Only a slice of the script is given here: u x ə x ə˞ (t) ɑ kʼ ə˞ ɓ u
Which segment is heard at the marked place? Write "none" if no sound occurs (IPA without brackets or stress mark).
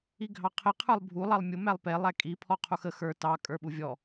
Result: t